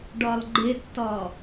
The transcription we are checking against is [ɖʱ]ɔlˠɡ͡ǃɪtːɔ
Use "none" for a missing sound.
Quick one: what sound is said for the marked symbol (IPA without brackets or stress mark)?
ɖ